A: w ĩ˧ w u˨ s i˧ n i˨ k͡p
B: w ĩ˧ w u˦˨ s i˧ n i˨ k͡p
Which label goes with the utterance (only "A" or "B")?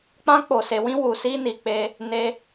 A